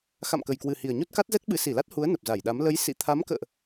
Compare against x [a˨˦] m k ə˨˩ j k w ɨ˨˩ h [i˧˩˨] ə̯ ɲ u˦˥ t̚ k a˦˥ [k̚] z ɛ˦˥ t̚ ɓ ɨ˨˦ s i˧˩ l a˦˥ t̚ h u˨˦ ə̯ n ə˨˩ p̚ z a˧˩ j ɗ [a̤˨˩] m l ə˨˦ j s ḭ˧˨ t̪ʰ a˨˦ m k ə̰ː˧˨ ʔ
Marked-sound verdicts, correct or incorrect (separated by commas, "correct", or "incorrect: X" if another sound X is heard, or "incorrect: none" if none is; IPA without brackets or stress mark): incorrect: a̰˧˨, incorrect: i˨˩, incorrect: t̚, incorrect: a˨˦